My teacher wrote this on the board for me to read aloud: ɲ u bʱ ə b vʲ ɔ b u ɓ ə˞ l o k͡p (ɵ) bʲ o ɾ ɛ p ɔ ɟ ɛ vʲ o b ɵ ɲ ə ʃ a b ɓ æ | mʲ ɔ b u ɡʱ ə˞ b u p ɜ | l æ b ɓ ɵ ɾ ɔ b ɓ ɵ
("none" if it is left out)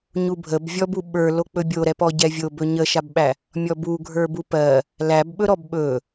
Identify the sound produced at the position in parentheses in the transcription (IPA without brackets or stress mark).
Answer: ɵ